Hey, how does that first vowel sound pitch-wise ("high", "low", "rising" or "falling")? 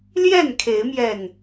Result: falling